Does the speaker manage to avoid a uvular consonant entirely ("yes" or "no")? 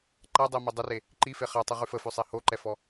no